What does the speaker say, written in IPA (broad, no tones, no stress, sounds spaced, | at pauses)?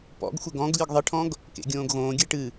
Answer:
p ɔ̰ ɡ xʷ ɘ ɡ ɔ̃ ɡ lʲ ɨ ɡ ðˤ ɨ ʈʰ ɔ̃ ɡ | k ḛ ɡʲ õː ɡ ɣ õː ɡʲ ɘ ʈ ɨ